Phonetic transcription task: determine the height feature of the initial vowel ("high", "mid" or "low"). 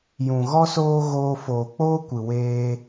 high